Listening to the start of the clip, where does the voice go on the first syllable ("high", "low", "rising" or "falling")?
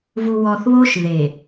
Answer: low